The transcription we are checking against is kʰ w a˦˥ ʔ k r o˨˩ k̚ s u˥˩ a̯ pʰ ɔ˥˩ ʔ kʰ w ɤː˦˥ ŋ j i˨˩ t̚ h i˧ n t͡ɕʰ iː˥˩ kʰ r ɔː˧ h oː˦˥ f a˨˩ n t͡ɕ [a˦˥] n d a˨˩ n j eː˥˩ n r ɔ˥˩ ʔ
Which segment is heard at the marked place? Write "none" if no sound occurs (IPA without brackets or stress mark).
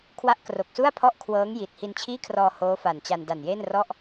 a˧